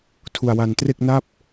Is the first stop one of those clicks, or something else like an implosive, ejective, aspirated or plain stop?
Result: aspirated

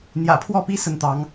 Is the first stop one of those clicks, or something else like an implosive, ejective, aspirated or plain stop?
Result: aspirated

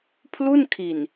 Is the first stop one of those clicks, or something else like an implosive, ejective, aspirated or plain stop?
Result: aspirated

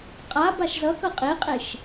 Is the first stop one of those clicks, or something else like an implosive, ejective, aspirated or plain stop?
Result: ejective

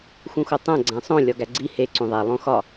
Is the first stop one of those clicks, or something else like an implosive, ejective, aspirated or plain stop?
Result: plain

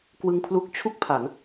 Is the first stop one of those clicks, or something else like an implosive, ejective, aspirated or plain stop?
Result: plain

